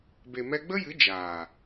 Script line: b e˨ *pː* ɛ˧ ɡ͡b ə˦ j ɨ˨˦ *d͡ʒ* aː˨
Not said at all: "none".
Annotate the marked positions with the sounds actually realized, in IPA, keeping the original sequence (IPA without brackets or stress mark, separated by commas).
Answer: m, d͡ʒ